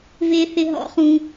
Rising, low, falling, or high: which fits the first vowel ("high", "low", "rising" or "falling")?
high